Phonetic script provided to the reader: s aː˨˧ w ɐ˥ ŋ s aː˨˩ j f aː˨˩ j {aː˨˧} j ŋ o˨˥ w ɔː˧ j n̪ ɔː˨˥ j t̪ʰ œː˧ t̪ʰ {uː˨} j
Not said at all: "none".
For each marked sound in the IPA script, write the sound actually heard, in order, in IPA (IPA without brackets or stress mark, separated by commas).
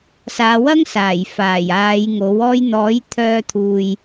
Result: aː˨˧, uː˨